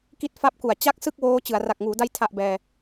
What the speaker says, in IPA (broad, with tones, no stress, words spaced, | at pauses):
ki˦˥t̚fa˦˥p̚ku˨˩a̯ t͡ɕa˥˩k̚sɯ˥˩k̚ woː˦˥t͡ɕɯ˩˦a̯ ra˨˩k̚ŋuː˩˦da˦˥j tʰa˨˩ʔ bɛː˧